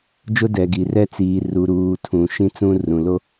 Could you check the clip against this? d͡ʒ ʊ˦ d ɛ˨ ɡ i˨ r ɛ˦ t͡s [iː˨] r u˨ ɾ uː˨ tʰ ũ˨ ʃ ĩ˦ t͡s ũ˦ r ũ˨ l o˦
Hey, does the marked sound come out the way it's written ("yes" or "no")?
yes